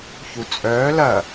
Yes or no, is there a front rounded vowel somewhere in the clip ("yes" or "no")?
yes